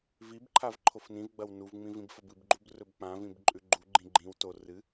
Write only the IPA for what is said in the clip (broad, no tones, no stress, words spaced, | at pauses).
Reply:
vibǃʰav ǃʰofnĩvɡ͡bɐw nuvŋ͡mĩ vĩbfɐbɨbɡ͡ǃub rɵbk͡pãvĩb ǃʼʉɡ͡ǃuɡ͡ǃĩ ɡ͡ǃĩw to rɨ